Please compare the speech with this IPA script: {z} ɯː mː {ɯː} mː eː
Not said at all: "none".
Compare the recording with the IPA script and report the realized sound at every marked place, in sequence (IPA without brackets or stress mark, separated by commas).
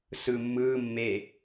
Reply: s, ɯː